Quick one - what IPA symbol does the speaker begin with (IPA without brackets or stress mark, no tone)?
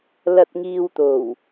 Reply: l